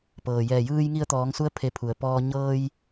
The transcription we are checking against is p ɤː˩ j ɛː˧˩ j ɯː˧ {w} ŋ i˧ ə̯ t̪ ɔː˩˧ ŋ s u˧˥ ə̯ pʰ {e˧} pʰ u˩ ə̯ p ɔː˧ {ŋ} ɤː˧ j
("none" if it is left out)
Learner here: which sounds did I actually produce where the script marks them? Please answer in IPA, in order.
j, e˧, ɲ

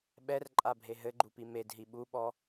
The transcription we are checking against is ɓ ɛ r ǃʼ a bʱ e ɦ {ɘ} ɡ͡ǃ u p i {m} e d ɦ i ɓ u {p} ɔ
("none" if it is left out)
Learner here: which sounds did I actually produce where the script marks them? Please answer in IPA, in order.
ɘ, m, ɓ

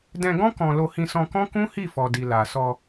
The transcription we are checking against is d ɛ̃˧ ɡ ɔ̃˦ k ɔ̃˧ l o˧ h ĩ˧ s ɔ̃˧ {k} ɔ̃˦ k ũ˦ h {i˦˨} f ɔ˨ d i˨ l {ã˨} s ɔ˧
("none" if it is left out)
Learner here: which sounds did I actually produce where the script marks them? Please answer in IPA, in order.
k, i˦˨, a˨

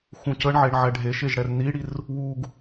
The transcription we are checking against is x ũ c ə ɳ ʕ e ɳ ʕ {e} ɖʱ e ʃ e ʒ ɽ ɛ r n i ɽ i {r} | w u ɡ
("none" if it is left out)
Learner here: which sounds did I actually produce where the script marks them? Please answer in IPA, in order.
ɛ, r

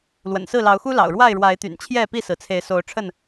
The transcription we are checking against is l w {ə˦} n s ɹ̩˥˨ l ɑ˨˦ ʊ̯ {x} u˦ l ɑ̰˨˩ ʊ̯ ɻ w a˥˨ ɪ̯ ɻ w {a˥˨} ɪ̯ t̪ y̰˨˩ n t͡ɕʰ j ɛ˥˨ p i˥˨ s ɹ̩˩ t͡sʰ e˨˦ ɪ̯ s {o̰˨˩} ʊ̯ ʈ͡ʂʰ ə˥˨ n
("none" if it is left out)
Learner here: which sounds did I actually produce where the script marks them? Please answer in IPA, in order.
ə̰˨˩, x, a˨˦, o˨˦

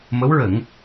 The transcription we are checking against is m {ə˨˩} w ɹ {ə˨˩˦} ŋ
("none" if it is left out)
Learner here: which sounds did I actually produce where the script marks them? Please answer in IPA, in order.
ə˧˥, ə˨˩˦

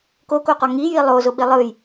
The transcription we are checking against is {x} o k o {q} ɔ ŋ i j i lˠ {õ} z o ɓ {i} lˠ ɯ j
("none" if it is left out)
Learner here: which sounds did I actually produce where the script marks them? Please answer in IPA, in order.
k, q, o, i

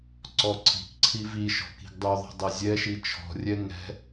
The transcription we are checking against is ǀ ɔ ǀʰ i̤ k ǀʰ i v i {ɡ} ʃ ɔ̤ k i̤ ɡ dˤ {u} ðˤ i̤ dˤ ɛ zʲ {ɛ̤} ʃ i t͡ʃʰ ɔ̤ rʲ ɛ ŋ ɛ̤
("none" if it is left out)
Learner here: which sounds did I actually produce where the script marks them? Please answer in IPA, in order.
none, ʉ, ɛ

